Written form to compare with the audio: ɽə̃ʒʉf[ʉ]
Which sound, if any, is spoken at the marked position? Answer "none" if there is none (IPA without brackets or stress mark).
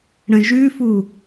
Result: u